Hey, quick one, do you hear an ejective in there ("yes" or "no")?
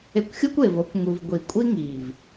yes